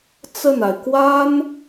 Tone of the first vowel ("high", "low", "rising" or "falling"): falling